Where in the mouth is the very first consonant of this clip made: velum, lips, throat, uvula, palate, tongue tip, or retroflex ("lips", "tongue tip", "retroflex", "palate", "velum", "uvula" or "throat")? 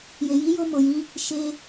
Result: palate